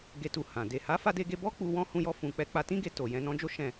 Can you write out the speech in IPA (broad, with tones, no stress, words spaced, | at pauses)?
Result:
ɡe˨tu˨ hã˨ de˨ha˨˦fa˧de˧ ɡe˧bɔ˦ k͡pu˧wɔ̃˦ hũ˦jɔ˦fũ˧k͡pɛ˦ k͡pa˧tĩ˦ɡe˧ to˨jɛ̃˧ nɔ̃˦d͡ʒo˦ʃɛ̃˦˨